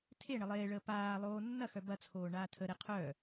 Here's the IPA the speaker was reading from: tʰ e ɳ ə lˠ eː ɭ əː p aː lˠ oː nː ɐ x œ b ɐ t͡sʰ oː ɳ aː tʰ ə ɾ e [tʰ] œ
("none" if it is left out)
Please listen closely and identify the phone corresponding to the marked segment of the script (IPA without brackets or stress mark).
qʰ